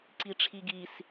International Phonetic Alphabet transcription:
ǀ i ʈ͡ʂʰ i ɡ i s

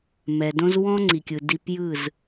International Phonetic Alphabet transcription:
m ɛ˨ d õ˦ z w ɔ̃˦ ŋ͡ǀ i˨ kʲ ɯ˨ d i˦ p j ɯ˦˨ z

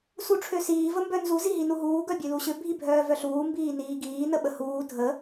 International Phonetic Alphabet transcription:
s u ʈ͡ʂʰ ø s iː v ə m b œ n z u z i ɦ i n u ɦ uː ɡ œ bʲ ø l u ɕ ʏ bʱ i bʱ œː v œ ɬ uː m b iː n iː ɡ iː n ə ɓ ə h uː dʱ ə

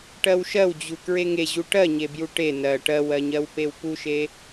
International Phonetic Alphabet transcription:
ʈ ɜ w ʃ ɜ w d͡ʑ u k ɹ e ŋ e ʑ u ʈ ɜ ɲ e b j u ʈ e n ɜ ʈ ɜ w ɜ ɲ ɜ w p e w p u ʃ e

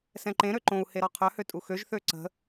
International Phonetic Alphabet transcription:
s ɛ̃ ǃ ẽ ɾ ø ǃ õ u̯ h e ɾ ɔ qʰ œ h ø tʼ u x ø ʒ θ ø ǀ ə̤

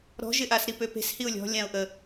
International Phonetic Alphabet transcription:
ɾ ɔ̤ ʒ ɪ ʔ a s ɾ i p ø p e̤ s h i ʊ̯ lʲ ɔ̤ lʲ ã ʊ̯ ʔ ə

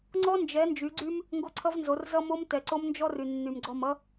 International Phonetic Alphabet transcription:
ŋ͡ǀ ɔ˦ n d͡ʒ ɛ˨˦ n d͡ʒ y˨˦ ɡ͡ǀ y˦ m | ŋ ɡ o˦ ǀʰ ʌ˦ v n z o˨˦ r z ʌ˦ m o˦ m t ɛ˨ ǀ o˦ m n d͡ʒ ɔ˦ r y˨ nː y˨ m ɡ͡ǀ ɔ˦˨ m ʌ˦

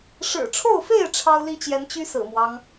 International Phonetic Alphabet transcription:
ʂ ɻ̩˨˩ ʈ͡ʂʰ o˥˨ ʊ̯ f e˥˨ ɪ̯ ʈ͡ʂʰ ɑ˦ ʊ̯ l i˦ t͡ɕ j ɛ˨˦ n t͡ɕ y˦ s ɹ̩˨˩ m w ɑ˦ ŋ

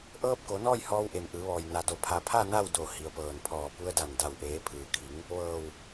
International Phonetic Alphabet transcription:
ʔ ɤː˧ p̚ k o˩˧ n ɔː˥˨ j h ɔː˧ w ʔ e˩ m ʔ ɯː˩˧ ʋ ɔː˩ j n a˩ d o˩ pʰ a˩ pʰ a˥˨ n a˥˨ w d o˧˩ h i˩ ə̯ p ɤː˧˩ n pʰ ɔː˧˩ p u˧ ə̯ d a˧˩ n d a˧˩ w ʔ eː˩˧ pʰ ɯː˩ kʰ i˩˧ ŋ | ʋ ɤː˧˩ w

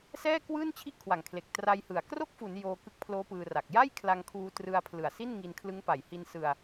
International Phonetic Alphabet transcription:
s ɛː˥˩ k w ɯː˥˩ n t͡ɕʰ i˥˩ ʔ kʰ w a˨˩ ŋ kʰ l e˨˩ k̚ t r a˧ j h ɯ˨˩ a̯ k r o˥˩ k̚ f u˩˦ n j oː˧ k ɯ˦˥ k̚ pʰ l oː˦˥ p ɯː˧ r a˨˩ k̚ j a˥˩ j kʰ l a˧ ŋ kʰ uː˧ t r ɯ˧ a̯ pʰ l ɯ˨˩ a̯ s i˥˩ n ŋ i˧ n kʰ l ɯ˦˥ ŋ p a˨˩ j h i˧ n s ɯ˧ a̯

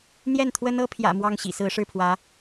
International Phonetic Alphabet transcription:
n̪ j ɛ˥˩ n t̪ʰ w ə˥ n ɤ˥ pʰ j ä̰˨˩ m w ɑ˥˩ ŋ ɕ ḭ˨˩ s ɹ̩˧˥ ʂ ɻ̩˥˩ pʰ w ä˧˥

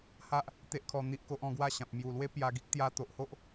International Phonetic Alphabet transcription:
h a˦ ʔ | t̪ e˦ ʔ kʰ ɔ˧ n̪ i˦ ʔ k o˦ ʔ ɔ̃˥˧ ɡ w a˥˧ ɕ ã˨ p̚ m j u˨˩ l w e˦ p j a˧ ɡ i˦ k̚ t̪ j a˧ t̪ o˨ ʔ h o˦ ʔ

